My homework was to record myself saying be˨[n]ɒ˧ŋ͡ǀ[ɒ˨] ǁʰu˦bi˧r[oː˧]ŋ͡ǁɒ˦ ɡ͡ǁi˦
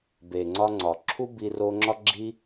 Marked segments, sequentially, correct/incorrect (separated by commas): incorrect, correct, incorrect